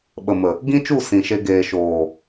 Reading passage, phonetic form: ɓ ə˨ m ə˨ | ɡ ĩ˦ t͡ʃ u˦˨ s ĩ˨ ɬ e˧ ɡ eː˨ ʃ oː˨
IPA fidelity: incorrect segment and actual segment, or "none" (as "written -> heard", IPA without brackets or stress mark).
ɬ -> ʃ